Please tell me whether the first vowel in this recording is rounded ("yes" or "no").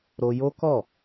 yes